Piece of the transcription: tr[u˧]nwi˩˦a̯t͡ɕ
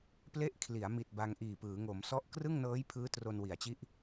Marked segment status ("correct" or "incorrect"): incorrect